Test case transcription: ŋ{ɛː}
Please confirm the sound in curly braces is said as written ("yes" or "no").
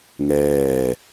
yes